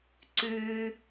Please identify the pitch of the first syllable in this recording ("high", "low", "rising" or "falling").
low